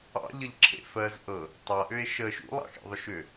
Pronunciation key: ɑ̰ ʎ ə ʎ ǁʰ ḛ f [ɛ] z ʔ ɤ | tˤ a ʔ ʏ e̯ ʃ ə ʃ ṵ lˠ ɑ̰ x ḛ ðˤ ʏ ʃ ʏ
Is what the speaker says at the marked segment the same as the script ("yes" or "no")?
no